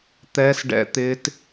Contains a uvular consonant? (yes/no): no